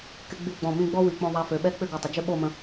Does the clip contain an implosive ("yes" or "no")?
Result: yes